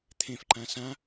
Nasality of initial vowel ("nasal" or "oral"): nasal